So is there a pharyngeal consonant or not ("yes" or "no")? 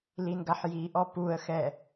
yes